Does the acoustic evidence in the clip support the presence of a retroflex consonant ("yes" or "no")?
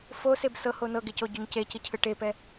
yes